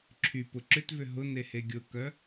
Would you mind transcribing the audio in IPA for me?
ǁʰ y p ʊ ǁ ʏ t v ʏ ɦ ʊ n e h e ɡʲ ʊ k œ

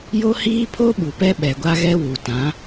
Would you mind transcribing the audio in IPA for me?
j o˦ h iː˦ pʰ o˦ ɓ u˨ p ɛ˦ ɓ ɛ˨ ɡʷ a˦ ɣ ɛ˦ w u˨ t ã˨˦

